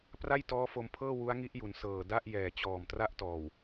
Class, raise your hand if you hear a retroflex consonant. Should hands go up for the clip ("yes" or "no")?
no